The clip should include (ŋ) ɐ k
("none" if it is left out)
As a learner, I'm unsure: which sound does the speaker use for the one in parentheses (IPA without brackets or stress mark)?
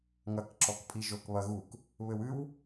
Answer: ŋ